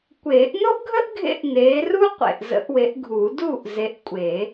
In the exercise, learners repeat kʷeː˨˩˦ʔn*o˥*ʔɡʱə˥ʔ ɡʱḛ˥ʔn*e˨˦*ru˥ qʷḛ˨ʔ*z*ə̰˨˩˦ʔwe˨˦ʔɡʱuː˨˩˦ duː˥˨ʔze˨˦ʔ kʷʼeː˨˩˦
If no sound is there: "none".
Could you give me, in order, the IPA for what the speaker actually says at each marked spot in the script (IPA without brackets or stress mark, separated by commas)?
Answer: o˥, eː˨˦, z